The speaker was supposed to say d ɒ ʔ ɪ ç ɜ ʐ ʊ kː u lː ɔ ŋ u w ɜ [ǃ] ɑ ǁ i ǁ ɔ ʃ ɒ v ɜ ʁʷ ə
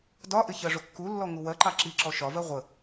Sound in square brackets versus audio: correct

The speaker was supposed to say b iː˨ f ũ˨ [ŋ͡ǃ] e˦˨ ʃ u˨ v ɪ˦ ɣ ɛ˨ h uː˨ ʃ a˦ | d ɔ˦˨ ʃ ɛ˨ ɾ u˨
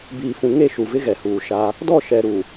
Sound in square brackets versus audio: incorrect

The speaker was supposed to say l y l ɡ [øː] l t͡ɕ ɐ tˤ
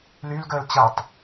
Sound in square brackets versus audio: incorrect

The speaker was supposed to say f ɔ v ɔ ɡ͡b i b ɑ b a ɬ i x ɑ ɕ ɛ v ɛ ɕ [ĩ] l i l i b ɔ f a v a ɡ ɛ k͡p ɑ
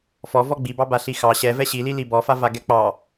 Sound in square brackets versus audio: incorrect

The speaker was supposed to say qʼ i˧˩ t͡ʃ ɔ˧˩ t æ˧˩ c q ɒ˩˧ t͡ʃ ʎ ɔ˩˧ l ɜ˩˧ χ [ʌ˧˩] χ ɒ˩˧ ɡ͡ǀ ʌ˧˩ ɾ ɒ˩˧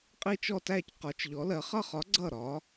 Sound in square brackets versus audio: correct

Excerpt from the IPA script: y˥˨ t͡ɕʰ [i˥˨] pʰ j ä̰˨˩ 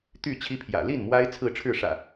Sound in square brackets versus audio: incorrect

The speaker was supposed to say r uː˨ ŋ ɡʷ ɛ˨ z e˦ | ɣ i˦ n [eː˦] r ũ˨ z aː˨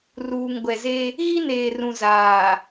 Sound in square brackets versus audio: incorrect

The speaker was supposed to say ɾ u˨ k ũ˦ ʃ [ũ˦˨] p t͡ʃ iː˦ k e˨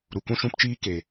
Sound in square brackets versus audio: incorrect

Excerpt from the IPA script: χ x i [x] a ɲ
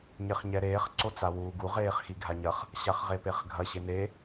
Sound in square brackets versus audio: incorrect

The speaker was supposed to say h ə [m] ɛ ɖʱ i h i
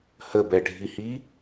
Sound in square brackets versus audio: incorrect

